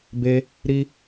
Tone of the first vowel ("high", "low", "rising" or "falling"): high